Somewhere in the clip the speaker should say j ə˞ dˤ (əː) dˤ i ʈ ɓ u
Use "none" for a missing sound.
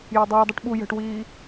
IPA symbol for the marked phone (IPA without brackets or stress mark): əː